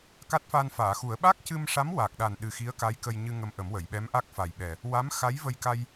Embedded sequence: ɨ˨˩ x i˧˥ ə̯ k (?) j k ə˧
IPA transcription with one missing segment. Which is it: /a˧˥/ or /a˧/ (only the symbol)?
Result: a˧˥